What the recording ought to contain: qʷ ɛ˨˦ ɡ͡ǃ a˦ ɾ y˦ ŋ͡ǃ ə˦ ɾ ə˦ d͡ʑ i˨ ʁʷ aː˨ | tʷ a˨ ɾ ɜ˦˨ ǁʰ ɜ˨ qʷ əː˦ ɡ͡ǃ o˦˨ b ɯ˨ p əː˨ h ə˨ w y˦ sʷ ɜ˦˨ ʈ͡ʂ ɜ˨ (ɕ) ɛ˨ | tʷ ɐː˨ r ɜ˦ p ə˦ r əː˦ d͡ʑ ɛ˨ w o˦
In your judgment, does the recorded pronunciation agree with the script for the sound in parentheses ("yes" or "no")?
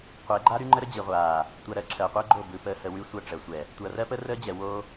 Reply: no